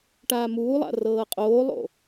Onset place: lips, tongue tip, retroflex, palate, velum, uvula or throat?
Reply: retroflex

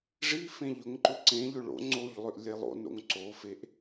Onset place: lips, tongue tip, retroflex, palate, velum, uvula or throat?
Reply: retroflex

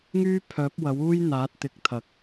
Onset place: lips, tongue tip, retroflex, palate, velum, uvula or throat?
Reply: velum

